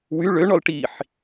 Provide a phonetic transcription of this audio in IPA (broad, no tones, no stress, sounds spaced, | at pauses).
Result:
w y ɭ ø ɳ ɔ l ʈ i ħ